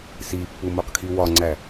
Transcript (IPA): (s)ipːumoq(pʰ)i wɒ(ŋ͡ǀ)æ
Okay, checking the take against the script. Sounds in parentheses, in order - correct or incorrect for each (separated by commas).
correct, incorrect, correct